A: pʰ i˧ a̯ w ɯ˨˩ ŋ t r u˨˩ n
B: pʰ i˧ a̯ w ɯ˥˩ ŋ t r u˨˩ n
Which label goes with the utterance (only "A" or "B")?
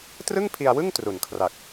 B